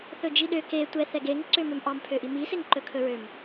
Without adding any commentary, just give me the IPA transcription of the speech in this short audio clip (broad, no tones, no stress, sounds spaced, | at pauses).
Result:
θ ɵ d͡ʒ i ɗ ø k e tʷ ɛ θ ɛ ɡ e ŋ ǀ ø m ø m ʔ ɑ m pʰ ø ʔ i m i s e ŋ ǃ ɵ kʰ ɵ ɹ ø m